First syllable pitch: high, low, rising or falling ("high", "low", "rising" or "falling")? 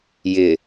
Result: low